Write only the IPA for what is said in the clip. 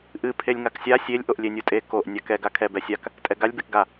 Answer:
ʔ ɨ pʰ e lʲ ŋ a k sʲ a sʲ e lʲ ʔ o ʔ lʲ e nʲ u tʼ e k o ʔ nʲ a k ɛ ɡ a kʰ ɛ b ɛ sʲ a k | tʼ ɛ ɡ a lʲ b e k ɡ a

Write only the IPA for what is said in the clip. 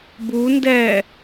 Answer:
b u n d ɛ

